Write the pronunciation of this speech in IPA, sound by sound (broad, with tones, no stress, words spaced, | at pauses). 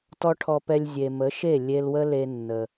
tɔ˦ʈʰɔ˧pɛ˧lʲ zʲe˨mə˨˦ʃe˦˨ lʲe˧lwə˦ le˧nːə˨